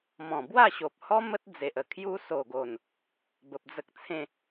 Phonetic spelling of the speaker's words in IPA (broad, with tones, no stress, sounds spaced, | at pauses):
m ɔ̃˨˩ b w a˥˧ ɕ o˨ p̚ h ɔ˦ m ə˦ t̚ d͡z e˨ ʔ ə˨˩ kʰ j u˧ s o˨˩ ɡ o˨˩ n | b ə˨ p̚ d͡z ə˦ k̚ t͡sʰ ẽ˥˧